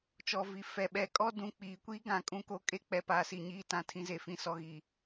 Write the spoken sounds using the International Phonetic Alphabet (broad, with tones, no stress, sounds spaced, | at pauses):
t͡ʃ ɔ˨ v i˨ f ɛ˨ ɓ ɛ˨ kʼ ɔ˦ d ũ˨ k͡p iː˨ kʷ i˦ ɡ ã˨˦ kʼ ũ˦ k o˦ kʼ e˦ k͡p ɛ˨ p aː˨ s i˨ ɲ iː˦ t ã˨ tʰ ĩ˦ z e˨ f ĩ˦˨ s ɔ˦ ɣ i˨